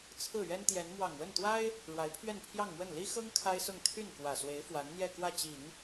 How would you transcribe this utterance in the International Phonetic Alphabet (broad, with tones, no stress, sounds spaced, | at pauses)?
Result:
t͡sʰ ɹ̩˥˩ ɥ ɛ˥ n t̪ j ɛ˧˥ n m w ɑ˨˩ ŋ w ə˥˩ n t̪ w a˥ ɪ̯ | ɻ w a˧˥ ɪ̯ pʰ ɥ ɛ˥˧ n pʰ j ɑ˥˧ ŋ m w ə˥˩ n l i˥ x ɤ˥ ŋ kʰ a˥ ɪ̯ s ʊ˥˧ ŋ t̪ʰ y˥˩ n k w ä˨˩ s w e˧˥ ɪ̯ f w a˧˥ n n̪ j ɛ˥˧ k w ä˥˩ t͡ɕ i˨˩˦ ŋ